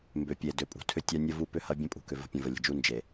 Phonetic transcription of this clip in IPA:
mbʏ˨ pʲe˨dʏ˨ pʼṳ˨tʰʏ˦tʲa˦ nʲə˦ vu˦pʏ˦hɐ˦ bʲə̃˦ pʼṳ˨ kʏ˨və̤˦pʲə̃˨ və˨lʲə̤˨d͡ʒu˦ nd͡ʒe˨

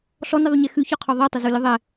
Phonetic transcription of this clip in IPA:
ɬɔniðˤuɲɛ xʉçɔqʰɔ ðˤitˤəzulʲə ðˤɛ

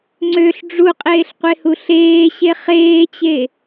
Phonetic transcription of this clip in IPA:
ŋ͡ǀøɬ ɖ͡ʐuqʼeːɬqʷehu ɬeːɕe χeːt͡ɕe

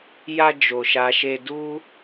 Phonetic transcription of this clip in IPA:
ja˧ d͡ʒo˧ʃa˦ ʃe˧du˦

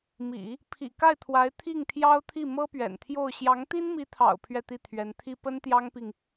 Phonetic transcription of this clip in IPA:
mḭ˨˩˦ | pʰḭ˨˩ ka˥˩ɪ̯t̪ʰwa˧˥ɪ̯ t̪ʰi˥˩ŋt̪ʰjɑ˥ʊ̯t̪ʰi˥˩ mɤ˥pɥɛ̰˨˩nt̪ʰjo˥˩ʊ̯ ɕjɑ˧˥ŋt̪i˥nmi˧˥t̪ʰɑ̰˨˩ʊ̯ pʰɥɛ˥˧t̪i˥˩t̪ʰɥɛ˧˥nt̪ʰi˥ pə˥nt̪jɑ˥ŋpi˨ŋ

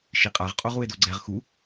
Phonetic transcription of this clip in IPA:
ʃiqʼaʁ qʼoʁue̯doɡ͡ǀɛʁ xu

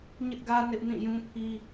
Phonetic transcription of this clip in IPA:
ɲɪ˦ʔɡä˦ nɪ˦ʔ nĩ˦˨jũ˦pʰi˦

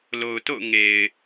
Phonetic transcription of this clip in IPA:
lo˨ʊ̯to̰˦˨ʊ̯ ŋe˨ɪ̯

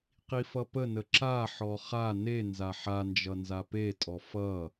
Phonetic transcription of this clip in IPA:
qifʌpənə ǁaħɔ χa ne nzaħand͡ʒʌ nzapetʼɔ fʌ

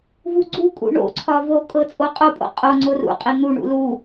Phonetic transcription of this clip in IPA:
vuɡ͡ǀukʼṵ ɳo̰ǀʰɒ vokʼɤ t͡sʼoqʼopʼo̰ qʼo ŋ͡ǀorṵqʼi n̪uɳṵ lu

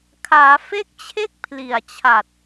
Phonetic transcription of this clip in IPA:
kʰaː˩˦fe˦˥k̚ t͡ɕʰe˥˩k̚pʰli˨˩a̯ t͡ɕʰa˨˩t̚

